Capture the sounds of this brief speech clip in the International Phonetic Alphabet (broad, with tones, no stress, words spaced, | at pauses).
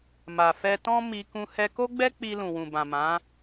ma˨ fɛ˧tɔ̃˦ mi˧ kũ˧ hɛ˧ko˦ɡ͡bɛ˦ k͡pi˧lũ˨wũ˨bã˨ mã˨˦